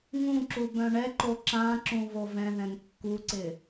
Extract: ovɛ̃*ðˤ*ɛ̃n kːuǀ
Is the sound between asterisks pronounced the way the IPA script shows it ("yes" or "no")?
no